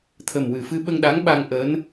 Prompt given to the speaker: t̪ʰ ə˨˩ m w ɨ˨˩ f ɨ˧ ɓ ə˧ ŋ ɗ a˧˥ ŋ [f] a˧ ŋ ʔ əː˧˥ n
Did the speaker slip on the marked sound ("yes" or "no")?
yes